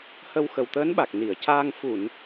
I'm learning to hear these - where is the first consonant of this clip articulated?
throat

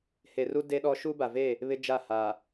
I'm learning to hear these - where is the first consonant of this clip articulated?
throat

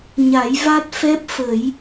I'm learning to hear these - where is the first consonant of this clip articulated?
palate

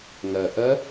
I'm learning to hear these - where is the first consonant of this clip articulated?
velum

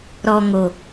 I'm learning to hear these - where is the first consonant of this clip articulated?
tongue tip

